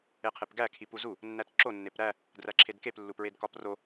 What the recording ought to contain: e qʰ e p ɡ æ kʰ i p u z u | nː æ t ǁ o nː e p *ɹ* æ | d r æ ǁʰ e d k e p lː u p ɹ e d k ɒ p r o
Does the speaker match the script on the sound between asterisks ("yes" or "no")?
no